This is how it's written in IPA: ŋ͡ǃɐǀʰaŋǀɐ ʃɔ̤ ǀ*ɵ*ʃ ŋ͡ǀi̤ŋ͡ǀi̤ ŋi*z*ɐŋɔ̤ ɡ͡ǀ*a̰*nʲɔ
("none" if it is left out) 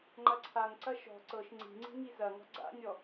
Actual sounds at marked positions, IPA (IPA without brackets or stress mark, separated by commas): ɤ, z, a̰